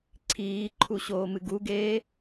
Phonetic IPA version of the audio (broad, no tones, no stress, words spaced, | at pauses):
ǀʰiːǃʰuɕoːmɨ ɡuɡeː